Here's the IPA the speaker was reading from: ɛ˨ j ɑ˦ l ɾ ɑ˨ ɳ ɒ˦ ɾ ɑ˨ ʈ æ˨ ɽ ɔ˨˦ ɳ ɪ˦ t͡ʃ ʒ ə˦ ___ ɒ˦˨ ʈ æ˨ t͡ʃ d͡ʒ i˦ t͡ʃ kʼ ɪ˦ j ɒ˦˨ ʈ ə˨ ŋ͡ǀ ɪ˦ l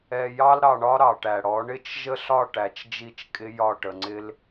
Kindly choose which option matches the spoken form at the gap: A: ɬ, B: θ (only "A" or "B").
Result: A